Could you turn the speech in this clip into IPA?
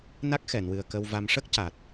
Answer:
n a˦˥ k̚ x ɛ˨˩˨ n w ɨ˨˩ ə̯ k ə˧ w v a˧ m ʂ ə˦˥ k̚ c a˨˩ t̚

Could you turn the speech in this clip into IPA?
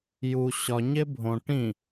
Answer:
j u ɕ ɒ ɲ e bʱ õ ʈ ĩ

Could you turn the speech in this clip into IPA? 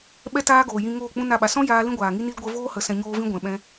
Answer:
ɓ ɛ˧ t aː˧ ɡ oː˨ j ĩ˧ ŋ oː˦˨ k͡p ũ˦ n a˦˨ ɓ a˨ s ɔ̃˦ j aː˧ l ĩ˦ ɡʷ aː˨ ŋ i˦ n i˦ l ɡʷ ə˧ v oː˦ h ə˨˦ s ɛ̃˧ ɲ oː˦ v ĩ˦ ɡʷ ɛ̃˨ ɓ ɛ̃˧

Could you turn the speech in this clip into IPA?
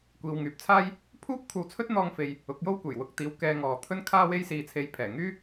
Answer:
kʷ iː˨ w ŋ yː˨ p̚ t͡sʰ aː˥ j | pʰ uː˥ p̚ kʷʰ ɐ˧ w t͡sʰ ɵ˥ t̚ n̪ ɔː˥ ŋ f e˧ j | ʊ˨˥ k̚ j o˥ w kʷ e˨˩ j w ʊ˧ k̚ t̪ iː˨˥ w k ɛː˧ ŋ ɔː˨ t̪ʰ ɵ˥ n kʰ aː˥ w e˥ j s iː˧ t͡sʰ e˧ j pʰ ɛː˨˩ ŋ yː˥

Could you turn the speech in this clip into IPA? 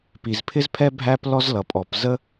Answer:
p i˩ z pʰ ɪ˥ z pʰ ɛ˥ bʱ æ˥ p l ɔ˥ z l ʌ˩ pʼ ɔ˩ p z ə˥

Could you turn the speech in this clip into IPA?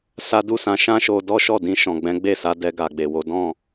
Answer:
s a˦ d u˦ s ã˧ ʃ ã˦ ʃ o˧ d ɔ˦ ʃ ɔ˦˨ d ĩ˧ ʃ ɔ̃˨ ɡ͡b ɛ̃˨˦ ɡ͡b e˦˨ s a˨˦ d ɛ˧ ɡ a˨ ɡ͡b e˨ w o˨˦ d ɔ̃˦˨

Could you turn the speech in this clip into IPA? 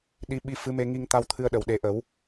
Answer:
ɗ i˧˥ ɓ i˧ f ɨ˧˥ m e˧ ŋ i˧ ŋ t̪ a˧ w t̪ʰ ɨ˧ ə̯ ɗ ə˨˩ w ɗ e˨˩˦ ʔ ə˨˩˦ w

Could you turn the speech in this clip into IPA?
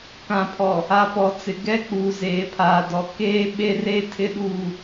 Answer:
k ã˨ pʰ ɔ˨ | a˨ p ɔ˨ t͡s ɪ˨ ɡ ɛ˦ k͡p uː˨ z eː˨ pʰ aː˨ d ɔ˨ k eː˦ ɓ e˦ r e˦ tʰ ɪ˦ ɗ uː˦

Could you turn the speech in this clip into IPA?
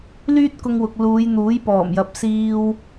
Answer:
l yː˥ t̚ k ʊ˧ ŋ w ʊ˨ k̚ l uː˨˧ j n̪ uː˨˥ j p ɔː˨˩ m j ɐ˨ p̚ s iː˧ w

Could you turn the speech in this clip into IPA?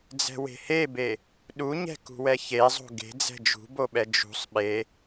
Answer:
d͡z ɛ̤ w e̤ h e b e | ɗ u ɲ ɛ̤ k ṳ w ɛ ç e zˤ o̤ ɡ e̤ d͡z ɛ̤ d͡ʒ ṳ b o ɓ ɛ d͡ʒ ṳ sˤ ɓ e

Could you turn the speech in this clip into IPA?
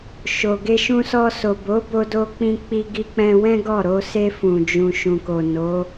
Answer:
ʃ o˨ ɡ e˧ ʃ ũ˧ s ɔ˧ s o˨ b o˨˦ b o˧ d o˧ k͡p ĩ˧ k͡p i˧ ɡ i˧ k͡p ɛ̃˧ w ɛ̃˦ ɡ ɔ˦˨ ɾ o˧ s e˧ f ũ˨ d͡ʒ ũ˨ ʃ ũ˨ k o˨ n o˨˦

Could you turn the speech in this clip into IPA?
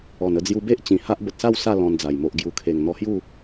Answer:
ɔ˨˩ n ə˥˧ d͡z j u˧ b e˦ ʔ t͡ɕ ĩ˨˩ h a˦ ʔ b ə˨ t̚ s a˥˧ w s a˥˧ l ɔ̃˧ n d͡z a˨˩ j m o˨ ʔ ɡ j u˨˩ kʰ e˨˩ ŋ n̪ ɔ˧ h j u˥˧

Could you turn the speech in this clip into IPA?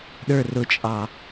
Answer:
ɗ ə˞ r ʊ t͡ʃʼ ɑ

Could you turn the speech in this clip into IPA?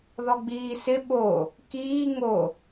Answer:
ð ɔ ɡ͡b iː s ɪ ɓ o | k iː ŋ o

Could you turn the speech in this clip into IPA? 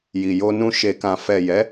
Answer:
j i˨ j o˧ n ũ˧ ʃ e˨ k ã˨ f ɛ˨ j ɛ˨˦

